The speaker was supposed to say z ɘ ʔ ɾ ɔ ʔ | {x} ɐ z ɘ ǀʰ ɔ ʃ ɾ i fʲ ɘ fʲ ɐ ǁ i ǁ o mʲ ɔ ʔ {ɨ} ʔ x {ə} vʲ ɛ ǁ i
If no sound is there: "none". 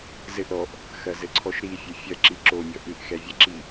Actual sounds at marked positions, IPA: x, ɨ, ɛ

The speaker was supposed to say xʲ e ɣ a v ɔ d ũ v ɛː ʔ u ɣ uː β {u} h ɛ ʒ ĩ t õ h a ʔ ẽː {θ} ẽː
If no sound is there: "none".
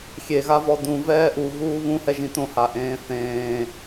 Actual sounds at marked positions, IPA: ũ, θ

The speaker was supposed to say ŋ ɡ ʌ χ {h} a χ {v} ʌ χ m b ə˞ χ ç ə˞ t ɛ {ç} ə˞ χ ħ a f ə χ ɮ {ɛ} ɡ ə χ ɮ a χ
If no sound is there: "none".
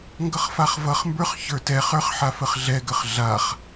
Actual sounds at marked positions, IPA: f, v, χ, ɛ

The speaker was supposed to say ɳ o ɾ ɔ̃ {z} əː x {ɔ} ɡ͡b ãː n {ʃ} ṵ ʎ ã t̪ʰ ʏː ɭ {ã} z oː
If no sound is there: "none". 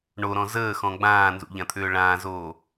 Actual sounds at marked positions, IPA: z, ɔ̃, z, ãː

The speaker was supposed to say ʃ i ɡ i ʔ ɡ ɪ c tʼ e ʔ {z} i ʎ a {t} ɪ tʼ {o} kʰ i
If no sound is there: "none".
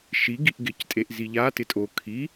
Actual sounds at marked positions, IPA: z, t, o

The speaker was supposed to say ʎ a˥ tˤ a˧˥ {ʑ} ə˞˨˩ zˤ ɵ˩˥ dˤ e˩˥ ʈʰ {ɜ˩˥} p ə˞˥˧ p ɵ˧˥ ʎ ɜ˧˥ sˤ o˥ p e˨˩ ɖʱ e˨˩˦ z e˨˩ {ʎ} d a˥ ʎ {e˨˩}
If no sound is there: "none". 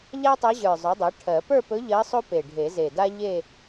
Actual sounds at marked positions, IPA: ʑ, ɜ˨˩˦, none, e˥˧

